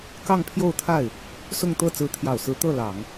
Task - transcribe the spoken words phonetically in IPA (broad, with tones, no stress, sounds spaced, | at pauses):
k ɑ˥˧ ŋ pʰ j o˥˧ ʊ̯ t̪ʰ a˥˩ ɪ̯ | s ʊ˥˧ ŋ t̪ ɤ˥˩ t͡s ɹ̩˧˥ t̪ʰ j ɑ˨˩ ʊ̯ s ɹ̩˧˥ t̪ ɤ˥˩ l ɑ˨˩˦ ŋ